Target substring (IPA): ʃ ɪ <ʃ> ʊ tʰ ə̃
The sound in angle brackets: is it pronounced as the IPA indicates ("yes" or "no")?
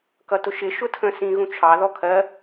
yes